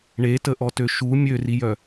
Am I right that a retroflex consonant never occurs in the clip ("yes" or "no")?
no